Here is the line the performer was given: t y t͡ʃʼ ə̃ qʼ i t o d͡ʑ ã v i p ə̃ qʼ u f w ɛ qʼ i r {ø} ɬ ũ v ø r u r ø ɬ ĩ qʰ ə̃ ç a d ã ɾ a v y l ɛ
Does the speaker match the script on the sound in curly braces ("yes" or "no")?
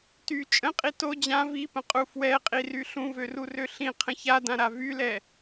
no